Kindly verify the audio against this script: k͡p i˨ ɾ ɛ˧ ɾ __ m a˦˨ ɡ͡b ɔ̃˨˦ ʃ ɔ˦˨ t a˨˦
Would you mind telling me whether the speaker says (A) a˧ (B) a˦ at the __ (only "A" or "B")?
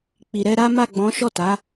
B